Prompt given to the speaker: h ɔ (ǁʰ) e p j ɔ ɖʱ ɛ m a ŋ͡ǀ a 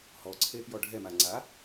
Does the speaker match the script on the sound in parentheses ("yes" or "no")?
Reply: no